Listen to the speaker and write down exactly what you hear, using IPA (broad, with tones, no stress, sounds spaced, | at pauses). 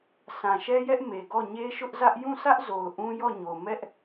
sʰ ã˨ ʃ ɛ˦ j ɛ˦ ʔ m e˨ ɡ ɔ˦˨ ɲ e˦ ʃ ʊ˦ ʔ z ä˦ ʔ j ũ˦˨ sʰ ä˦ ʔ z o˨ ʊ̯ ʔ ũ˦ j ɔ˦˨ ɲ o˨ m ɛ˦ ʔ